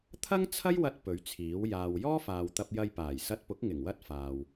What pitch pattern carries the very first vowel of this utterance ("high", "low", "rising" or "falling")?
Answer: high